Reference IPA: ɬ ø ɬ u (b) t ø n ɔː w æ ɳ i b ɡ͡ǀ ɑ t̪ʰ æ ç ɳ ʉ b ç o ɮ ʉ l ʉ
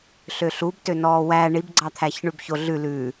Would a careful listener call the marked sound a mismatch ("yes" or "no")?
no